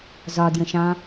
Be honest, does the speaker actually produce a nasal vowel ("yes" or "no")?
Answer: yes